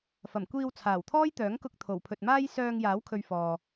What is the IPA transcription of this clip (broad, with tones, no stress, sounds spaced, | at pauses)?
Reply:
f ɐ˨˩ m kʷ iː˧ w t͡sʰ aː˨˩ w t̪ʰ ɔː˥ j t̪ œː˨˥ ŋ k ʊ˧ k̚ t̪ʰ o˨˩ w pʰ ɵ˨ t̚ m aː˥ j s œː˧ ŋ j aː˨˥ w kʰ ɵ˨ ɥ f ɔː˨